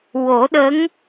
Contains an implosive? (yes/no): yes